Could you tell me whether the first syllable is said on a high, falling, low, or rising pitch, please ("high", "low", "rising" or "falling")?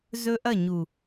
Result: high